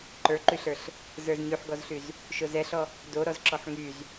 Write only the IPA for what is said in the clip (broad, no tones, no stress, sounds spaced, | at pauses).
ǃ ə˞ ǃ y ɬ ə˞ ɬ | z ə˞ z ɲ y ħ ɡ ɔ z ɬ y z | ʃ o z ɛ ɬ ɔ | d o ɾ ɔ z ǁ ɔ ħ ŋ y z